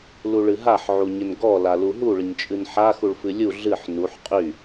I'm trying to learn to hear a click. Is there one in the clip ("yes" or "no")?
no